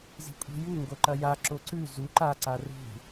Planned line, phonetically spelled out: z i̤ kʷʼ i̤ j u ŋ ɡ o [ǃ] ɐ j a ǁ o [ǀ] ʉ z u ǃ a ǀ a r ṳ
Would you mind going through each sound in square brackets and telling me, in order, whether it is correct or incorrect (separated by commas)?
correct, correct